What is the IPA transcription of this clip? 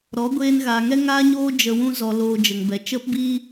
ɾ ɔ˨˦ ɡʷ eː˧ n ɣ aː˨ ŋ ɛ˦ ŋ aː˦ ɲ oː˦ d͡ʒ ə˧ w ũ˦ z ɔ˧ l oː˧ d͡ʒ ə˨ ŋ b ɛ˨ t͡ʃ ə˦ p b iː˦

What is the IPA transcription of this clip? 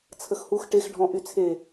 t͡sʰ ə x h u x ʈ e x ɖʱ ɔ̃ ʔ y t͡sʰ e

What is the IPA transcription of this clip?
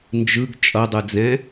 n d͡ʒ ɯ ɡ t͡ʃʼ ʌ dˤ ɯ d͡z ɛ̃

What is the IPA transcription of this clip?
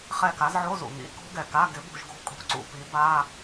χ ɛ˦˨ k a˨˥ z ʕ o˧˥˧ z ṵ˨˩ ŋ ḭ˧˥˧ k o̤˦˥ ɡ ɛ˨˩ k a˧˥˧ ɡ ɪ˨˥ b o̤˦˨ ʒ ɡ o̤˦˥ kʼ o̤˧˥˧ ǀ ṵ˦˨ p i˨˥ b a˧˥˧

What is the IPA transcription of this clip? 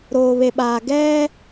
ɾ oː˨ β e˨ ɓ aː˨ ɡ ɛ˦

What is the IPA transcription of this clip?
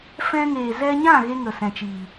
f ɛ̃˧ ŋ eː˨ z ɛ˧ ɲ ã˦˨ ɣ e˦ ŋ ə˨ s ɛ̃˨ t͡ʃ iː˨

